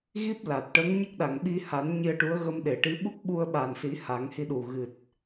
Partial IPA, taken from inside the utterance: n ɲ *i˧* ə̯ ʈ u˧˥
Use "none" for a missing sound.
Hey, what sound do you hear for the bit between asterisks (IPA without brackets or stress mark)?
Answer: i˧